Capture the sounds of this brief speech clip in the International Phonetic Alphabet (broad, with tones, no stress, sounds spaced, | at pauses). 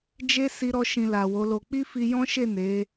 d͡ʒ e˦ s i˦ ɾ ɔ˦ ʃ ĩ˧ l a˨ w o˨˦ l o˧ k͡p i˦ f i˧ j ɔ̃˦ ʃ e˦˨ n e˨˦